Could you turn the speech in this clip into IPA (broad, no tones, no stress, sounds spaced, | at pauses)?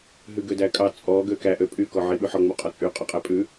ɦ ʉ ɡ ø d æ kʼ ɑ t͡sʼ ɔ ɡ ø k æ ʔ ø pʼ y k ɔ ʕ i ɓ ʉ ħ ɔ ŋ͡m u qʼ ɔ t͡sʼ y qʼ ɵ qʼ æ pʼ ʉ